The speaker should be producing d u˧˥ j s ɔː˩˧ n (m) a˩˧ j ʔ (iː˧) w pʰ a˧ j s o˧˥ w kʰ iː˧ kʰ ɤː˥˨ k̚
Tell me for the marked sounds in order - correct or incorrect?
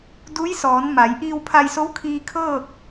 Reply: correct, correct

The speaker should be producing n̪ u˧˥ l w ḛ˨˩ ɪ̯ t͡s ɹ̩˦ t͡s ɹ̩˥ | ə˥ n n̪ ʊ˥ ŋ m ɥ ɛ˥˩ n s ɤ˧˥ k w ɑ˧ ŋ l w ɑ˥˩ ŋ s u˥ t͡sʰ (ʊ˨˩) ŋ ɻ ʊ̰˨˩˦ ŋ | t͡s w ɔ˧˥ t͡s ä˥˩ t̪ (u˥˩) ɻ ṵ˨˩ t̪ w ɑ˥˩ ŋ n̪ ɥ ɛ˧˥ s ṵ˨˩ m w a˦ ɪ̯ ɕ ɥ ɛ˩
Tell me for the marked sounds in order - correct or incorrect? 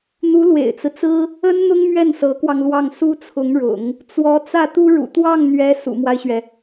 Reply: incorrect: ʊ˧˥, incorrect: u˥

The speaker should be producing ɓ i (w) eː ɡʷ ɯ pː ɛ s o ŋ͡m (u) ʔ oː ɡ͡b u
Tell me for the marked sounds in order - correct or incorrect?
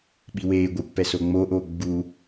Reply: correct, incorrect: o

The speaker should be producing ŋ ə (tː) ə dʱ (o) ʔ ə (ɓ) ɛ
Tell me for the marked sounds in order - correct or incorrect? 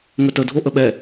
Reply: incorrect: t, correct, correct

